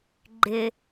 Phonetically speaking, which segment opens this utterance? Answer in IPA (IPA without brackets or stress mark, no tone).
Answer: ɡ͡ǃ